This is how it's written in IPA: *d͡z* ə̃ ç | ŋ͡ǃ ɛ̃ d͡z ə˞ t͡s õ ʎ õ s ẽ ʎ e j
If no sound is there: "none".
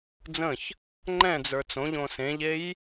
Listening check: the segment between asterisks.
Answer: d͡z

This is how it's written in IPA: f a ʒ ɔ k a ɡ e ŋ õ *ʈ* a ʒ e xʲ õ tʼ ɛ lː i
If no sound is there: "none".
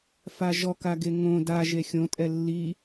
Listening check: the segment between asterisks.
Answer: d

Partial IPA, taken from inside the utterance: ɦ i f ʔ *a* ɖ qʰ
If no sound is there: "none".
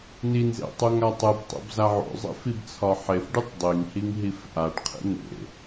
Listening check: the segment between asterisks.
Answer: a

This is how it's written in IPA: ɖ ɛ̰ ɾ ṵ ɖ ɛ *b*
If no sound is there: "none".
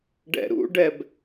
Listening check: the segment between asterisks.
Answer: b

